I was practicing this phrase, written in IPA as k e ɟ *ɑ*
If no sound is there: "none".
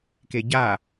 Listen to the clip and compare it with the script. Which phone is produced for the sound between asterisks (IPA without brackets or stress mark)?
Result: a